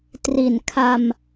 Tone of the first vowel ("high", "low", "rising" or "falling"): low